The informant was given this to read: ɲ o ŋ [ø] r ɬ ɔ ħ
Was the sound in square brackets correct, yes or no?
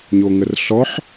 no